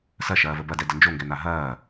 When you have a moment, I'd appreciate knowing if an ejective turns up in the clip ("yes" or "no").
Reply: no